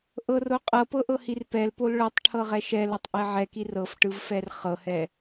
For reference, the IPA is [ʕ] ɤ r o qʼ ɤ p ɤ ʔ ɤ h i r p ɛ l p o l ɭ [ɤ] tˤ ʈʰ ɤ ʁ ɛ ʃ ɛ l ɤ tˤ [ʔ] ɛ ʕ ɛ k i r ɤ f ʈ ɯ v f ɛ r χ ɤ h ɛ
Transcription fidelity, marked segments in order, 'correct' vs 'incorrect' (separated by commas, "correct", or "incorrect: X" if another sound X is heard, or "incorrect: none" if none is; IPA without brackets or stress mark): incorrect: ʔ, correct, correct